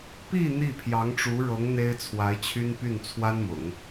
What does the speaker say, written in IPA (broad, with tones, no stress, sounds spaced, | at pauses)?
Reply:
p i˥˧ n̪ i˥˩ pʰ j ɑ˧˥ ŋ ʈ͡ʂ u˧˥ ɻ ɤ˧˥ ŋ n̪ e˥ ɪ̯ t͡sʰ w a˧˥ ɪ̯ t͡ɕʰ y˥ n p y˥˩ n t͡sʰ w a˥ n m ʊ̰˨˩˦ ŋ